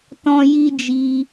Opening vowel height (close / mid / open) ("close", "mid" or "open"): mid